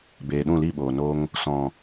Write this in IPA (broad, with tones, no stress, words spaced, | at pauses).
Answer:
beː˨ɗũ˦˨li˦˨ɓoː˨ no˧ŋ | sɔ̃˨